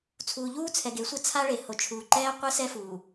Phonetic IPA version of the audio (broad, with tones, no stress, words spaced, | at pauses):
t͡sʰuː˨ʎuː˦t͡sʰɛ˨ɡe˨˦ sʷɯ˦ t͡sʰa˦ɭe˨ho˨t͡ʃʰuː˨ ǃɛː˦qʷɯ˦ sɛ˦ fuː˨